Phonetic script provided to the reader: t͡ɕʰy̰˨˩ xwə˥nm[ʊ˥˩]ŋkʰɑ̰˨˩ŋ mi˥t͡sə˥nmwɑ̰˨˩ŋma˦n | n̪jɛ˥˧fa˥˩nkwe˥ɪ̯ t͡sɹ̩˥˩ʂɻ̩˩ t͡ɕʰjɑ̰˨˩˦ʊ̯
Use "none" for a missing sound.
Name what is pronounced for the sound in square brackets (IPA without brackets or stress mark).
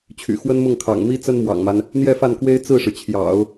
ʊ˥˩